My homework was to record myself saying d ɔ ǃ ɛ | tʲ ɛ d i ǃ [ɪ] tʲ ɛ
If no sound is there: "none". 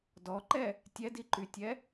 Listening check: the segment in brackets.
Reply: y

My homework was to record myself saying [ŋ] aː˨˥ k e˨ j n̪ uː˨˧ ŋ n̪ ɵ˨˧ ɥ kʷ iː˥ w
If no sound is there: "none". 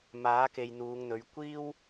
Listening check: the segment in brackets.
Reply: m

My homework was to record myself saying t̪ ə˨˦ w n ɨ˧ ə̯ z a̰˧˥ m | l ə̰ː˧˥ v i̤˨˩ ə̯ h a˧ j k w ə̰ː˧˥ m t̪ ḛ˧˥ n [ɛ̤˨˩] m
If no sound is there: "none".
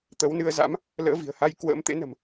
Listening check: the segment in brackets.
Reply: ə̤˨˩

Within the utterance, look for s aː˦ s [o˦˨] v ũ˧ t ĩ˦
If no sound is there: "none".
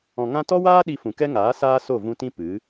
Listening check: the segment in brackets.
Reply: o˦˨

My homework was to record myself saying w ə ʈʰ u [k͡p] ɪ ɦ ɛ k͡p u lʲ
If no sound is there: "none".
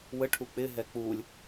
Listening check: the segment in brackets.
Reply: k͡p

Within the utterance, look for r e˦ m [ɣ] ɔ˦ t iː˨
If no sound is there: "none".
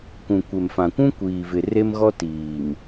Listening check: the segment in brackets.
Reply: ɣ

